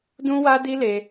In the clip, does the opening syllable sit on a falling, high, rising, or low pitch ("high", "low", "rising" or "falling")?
high